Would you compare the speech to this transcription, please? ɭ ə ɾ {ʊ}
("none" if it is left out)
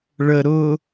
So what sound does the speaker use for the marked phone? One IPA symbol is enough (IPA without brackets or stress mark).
ʊ